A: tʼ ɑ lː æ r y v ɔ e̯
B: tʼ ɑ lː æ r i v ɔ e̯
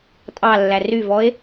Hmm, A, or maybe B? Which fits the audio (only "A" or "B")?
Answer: A